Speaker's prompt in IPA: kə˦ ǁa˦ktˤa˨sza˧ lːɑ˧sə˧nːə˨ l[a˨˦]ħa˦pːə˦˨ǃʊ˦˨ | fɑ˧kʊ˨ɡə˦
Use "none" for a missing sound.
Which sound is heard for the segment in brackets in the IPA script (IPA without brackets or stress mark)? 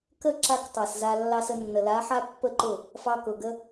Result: a˨˦